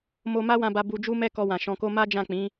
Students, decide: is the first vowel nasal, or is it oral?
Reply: oral